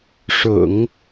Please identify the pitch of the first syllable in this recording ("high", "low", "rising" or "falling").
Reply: low